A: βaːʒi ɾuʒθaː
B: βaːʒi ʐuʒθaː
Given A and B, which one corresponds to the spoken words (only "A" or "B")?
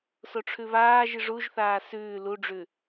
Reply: B